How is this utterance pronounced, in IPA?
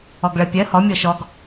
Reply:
ɔɡɭɜpʲɜ hɔ mʲɔʃɔɡ

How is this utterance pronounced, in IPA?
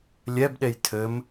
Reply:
lʲɛbɗej tʰɘm

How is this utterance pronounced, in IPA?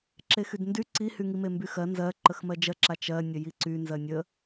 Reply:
ǁexydndy ǀihy ŋimembyxɜ nzɜ ǃəxmɜd͡ʒɜǁa t͡ʃɜnʲə jiǀy nzɜnʲə

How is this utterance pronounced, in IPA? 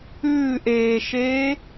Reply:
ʉːʔeːʃeː

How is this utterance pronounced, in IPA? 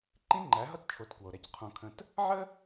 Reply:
ǃĩ˦ŋ͡ǃæ˨˦ɦʌ˦tt͡ʃʰo˨t kwo˨ɾæ˦c qʰõ˨kʰə̃˨t | ʕə˦

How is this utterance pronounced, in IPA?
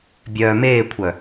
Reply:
bʲœːmeːkʷʰœ

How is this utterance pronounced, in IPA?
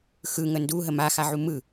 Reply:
xɯ ŋəndu ɦəma xaʕumɯ

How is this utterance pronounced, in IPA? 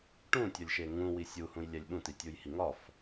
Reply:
ʈũtʲɒlʲʃe ŋũwi sʲuhũjlʲælʲ ɓũtitʲujhi ŋɒf

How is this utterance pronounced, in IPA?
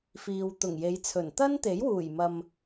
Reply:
fiː˨wt̪ʊ˨˩ŋje˨˧jt͡sʰɵ˨˩n t̪ɐ˥nt̪e˨˥jwuː˨˩j mɐ˨m

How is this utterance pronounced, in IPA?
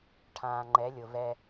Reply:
ʈʰãː˨ŋ͡ǃɛ˨˦lʲʊ˨vɛ˦

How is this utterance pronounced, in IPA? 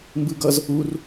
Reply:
mbɯɡʌz | ur

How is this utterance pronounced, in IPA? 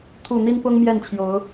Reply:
t̪ʰu˨˩ n̪i˦npʊ˦ŋ mjɛ˥˨nt͡ɕʰjo˨˦ʊ̯

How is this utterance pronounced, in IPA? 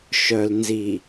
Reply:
ʃœ˨lnzi˨

